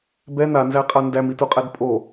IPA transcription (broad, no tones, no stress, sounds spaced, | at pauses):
b ɛ n a n z æ qʼ a n d æ m i t u qʼ ɛ d pʼ o